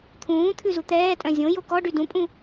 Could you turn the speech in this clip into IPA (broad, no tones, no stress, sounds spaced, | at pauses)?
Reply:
t̪ʰ ũː t̪ʰ ʉ z u t̪ ɛː tʼ œ̃ zʲ õ j o k ɔ ɖ y d ũ pʼ ũ